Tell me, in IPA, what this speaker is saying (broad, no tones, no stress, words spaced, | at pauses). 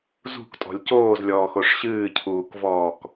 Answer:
zṳktʼɔ̤lʲ coːzlʲɔːxoʂ ɕɨːcʰuːkvɔːk